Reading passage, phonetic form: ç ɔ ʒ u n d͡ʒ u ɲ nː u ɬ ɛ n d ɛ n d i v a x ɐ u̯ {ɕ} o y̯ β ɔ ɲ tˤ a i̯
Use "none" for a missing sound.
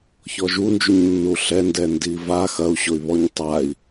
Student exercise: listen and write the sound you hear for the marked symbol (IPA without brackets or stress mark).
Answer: ɕ